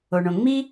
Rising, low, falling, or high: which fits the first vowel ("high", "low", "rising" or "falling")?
low